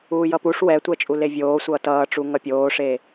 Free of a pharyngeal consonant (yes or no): yes